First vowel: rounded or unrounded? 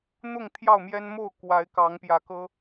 rounded